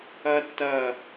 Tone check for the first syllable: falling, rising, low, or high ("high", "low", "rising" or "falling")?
high